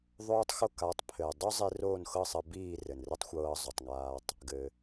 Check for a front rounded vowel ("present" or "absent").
absent